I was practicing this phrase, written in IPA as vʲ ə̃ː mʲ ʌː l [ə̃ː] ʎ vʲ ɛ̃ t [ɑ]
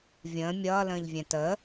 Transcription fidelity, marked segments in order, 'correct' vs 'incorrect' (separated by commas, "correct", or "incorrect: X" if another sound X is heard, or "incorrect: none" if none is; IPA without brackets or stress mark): correct, incorrect: ə